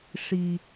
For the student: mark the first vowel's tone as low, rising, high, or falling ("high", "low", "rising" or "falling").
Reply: low